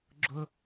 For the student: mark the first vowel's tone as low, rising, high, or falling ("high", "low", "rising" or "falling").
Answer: high